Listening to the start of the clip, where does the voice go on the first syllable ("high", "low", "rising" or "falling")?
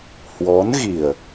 rising